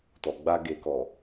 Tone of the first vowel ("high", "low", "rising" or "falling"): low